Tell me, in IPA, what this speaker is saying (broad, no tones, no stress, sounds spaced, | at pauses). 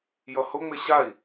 j ʌ h ʊ ŋ͡m ɪ ɕ a i̯